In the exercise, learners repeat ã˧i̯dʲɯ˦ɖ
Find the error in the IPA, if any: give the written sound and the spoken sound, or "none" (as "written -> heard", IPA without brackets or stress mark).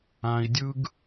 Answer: ɖ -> ɡ